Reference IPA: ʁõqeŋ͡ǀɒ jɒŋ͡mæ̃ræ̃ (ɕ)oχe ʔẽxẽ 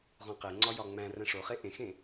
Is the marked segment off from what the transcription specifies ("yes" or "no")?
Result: yes